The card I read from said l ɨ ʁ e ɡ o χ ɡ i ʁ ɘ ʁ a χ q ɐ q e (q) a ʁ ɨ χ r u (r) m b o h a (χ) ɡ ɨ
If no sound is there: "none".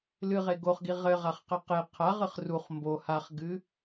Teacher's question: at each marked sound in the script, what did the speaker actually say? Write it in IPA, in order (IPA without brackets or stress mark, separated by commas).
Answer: qʰ, χ, χ